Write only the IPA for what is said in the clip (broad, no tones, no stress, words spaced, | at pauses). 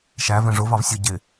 ʃævɛ̃ ʐʊ vɑvsʲʊ ɟɪ